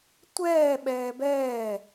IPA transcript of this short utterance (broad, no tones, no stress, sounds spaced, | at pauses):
tʷ ɛː ɓ ɛː b ɛː